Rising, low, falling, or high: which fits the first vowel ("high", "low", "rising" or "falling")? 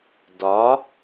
rising